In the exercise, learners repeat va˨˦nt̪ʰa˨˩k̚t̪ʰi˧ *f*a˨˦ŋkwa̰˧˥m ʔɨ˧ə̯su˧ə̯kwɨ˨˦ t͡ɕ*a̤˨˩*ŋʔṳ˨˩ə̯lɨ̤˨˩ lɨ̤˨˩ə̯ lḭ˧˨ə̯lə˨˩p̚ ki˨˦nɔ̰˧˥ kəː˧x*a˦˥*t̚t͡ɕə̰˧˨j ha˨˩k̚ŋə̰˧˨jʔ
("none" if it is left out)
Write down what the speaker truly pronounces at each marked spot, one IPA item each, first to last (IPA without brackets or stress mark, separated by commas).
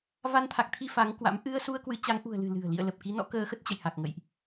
f, a˨˦, ə˦˥